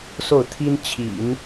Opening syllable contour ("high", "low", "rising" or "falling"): falling